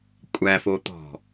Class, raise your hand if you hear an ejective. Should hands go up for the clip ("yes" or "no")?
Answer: yes